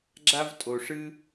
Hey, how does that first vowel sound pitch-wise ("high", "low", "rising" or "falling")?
high